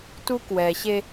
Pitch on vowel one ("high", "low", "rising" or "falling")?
high